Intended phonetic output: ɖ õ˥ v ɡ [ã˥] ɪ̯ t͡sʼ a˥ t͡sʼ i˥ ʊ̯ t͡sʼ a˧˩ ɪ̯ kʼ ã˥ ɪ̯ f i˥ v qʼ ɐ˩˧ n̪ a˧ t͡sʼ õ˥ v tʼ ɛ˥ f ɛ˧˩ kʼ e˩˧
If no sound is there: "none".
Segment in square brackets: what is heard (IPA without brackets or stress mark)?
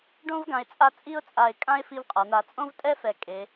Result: ã˧